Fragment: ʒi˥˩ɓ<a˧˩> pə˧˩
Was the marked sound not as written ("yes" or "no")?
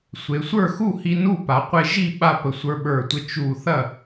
yes